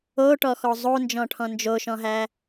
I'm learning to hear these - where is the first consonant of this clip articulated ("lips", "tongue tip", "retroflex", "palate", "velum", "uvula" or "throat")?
retroflex